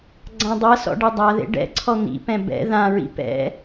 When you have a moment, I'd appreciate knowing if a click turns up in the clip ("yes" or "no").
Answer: yes